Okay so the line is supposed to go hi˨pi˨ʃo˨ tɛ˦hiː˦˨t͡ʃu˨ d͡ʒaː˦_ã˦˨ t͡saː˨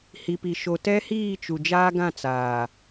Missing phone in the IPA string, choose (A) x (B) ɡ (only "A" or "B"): B